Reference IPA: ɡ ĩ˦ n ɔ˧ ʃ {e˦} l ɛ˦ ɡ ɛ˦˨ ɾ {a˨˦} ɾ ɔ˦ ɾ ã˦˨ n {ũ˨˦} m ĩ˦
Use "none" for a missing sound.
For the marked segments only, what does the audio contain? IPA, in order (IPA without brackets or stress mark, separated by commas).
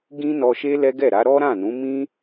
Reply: e˦, a˨˦, ũ˨˦